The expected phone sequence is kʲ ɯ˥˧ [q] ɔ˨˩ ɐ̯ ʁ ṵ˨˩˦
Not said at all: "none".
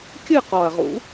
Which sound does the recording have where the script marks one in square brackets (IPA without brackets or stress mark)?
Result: q